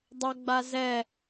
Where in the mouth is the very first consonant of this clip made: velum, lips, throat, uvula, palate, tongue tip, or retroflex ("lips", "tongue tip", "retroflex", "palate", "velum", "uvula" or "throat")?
tongue tip